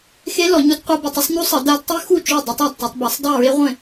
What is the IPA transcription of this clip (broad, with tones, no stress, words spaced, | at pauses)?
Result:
xe˦˥ lɔ˨˩˦ɲu˦˥dqʷa˦˥by˨˩˦tˤ ə˦˥sˤɲu˦˥sˤə˨˩˦ da˦˥d tˤy˦˥xu˥˩t͡ʃo˥˩ dˤə˦˥tˤa˥˩dtˤø˨˩˦tˤba˨˩˦sˤ dˤy˥˩ɹe˦˥ ʁʷẽ˥˩